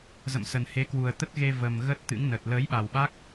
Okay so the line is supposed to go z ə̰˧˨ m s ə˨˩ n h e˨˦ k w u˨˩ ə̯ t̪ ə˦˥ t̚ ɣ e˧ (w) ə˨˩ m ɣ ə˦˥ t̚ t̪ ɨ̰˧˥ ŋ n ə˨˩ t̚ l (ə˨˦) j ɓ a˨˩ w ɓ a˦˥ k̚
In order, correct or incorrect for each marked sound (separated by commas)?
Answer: incorrect, incorrect